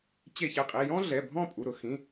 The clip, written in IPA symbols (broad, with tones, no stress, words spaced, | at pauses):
t͡ɕe˧˩çɛ˧˩qʼi˩˧˩ jɔ̃˥ɮɛ˩˧˩ bʱɔ̃˥˧pʼu˩˧˩ɾʊ˩˧ xĩ˩˧˩